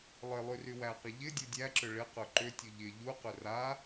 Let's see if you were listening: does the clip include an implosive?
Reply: no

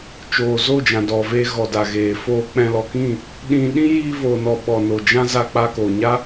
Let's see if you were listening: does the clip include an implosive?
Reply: yes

